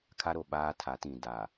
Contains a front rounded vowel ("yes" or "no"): no